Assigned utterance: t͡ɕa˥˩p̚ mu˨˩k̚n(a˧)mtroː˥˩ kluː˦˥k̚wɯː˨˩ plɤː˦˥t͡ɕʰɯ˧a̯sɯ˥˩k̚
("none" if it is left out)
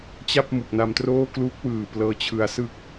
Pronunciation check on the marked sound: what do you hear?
a˧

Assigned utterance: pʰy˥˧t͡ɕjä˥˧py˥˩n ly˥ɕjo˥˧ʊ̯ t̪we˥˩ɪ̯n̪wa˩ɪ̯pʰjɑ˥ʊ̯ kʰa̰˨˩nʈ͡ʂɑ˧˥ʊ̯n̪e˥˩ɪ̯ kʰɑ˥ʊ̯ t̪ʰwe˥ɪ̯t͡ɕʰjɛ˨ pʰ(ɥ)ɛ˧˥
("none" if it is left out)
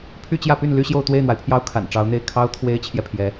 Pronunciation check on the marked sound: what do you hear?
j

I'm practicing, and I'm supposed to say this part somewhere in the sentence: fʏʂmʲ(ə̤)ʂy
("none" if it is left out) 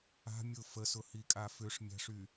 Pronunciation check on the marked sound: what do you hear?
a̤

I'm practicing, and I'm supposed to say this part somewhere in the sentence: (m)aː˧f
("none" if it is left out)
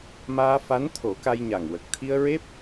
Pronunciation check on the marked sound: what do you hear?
m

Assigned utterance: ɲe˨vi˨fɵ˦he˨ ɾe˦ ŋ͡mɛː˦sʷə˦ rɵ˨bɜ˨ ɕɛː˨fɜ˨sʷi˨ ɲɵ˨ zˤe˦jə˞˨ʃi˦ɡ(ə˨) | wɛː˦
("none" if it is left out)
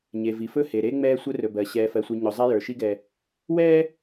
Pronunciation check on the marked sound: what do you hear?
ɛ˨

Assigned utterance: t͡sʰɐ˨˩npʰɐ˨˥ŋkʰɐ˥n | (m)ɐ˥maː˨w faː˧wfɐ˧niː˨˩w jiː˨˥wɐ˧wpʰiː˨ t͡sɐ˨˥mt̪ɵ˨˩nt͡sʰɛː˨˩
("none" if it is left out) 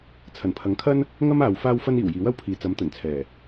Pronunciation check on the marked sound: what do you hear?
ŋ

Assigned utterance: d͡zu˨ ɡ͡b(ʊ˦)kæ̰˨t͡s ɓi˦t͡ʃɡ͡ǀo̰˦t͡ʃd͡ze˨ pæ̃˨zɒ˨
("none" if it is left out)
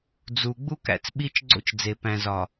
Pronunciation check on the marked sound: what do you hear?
u˦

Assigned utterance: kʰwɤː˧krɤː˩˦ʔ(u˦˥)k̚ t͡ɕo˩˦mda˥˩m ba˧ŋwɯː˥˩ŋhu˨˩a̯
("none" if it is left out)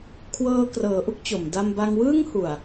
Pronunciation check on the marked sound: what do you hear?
u˥˩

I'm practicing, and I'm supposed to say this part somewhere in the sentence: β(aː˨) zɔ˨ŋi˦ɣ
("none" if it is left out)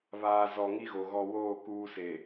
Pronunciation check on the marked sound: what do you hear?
aː˨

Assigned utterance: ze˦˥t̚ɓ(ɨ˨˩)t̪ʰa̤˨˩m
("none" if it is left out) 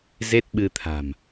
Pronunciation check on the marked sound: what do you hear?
ɨ˧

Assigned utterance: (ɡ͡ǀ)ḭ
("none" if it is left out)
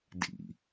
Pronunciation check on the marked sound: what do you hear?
d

